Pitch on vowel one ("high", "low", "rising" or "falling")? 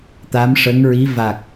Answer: rising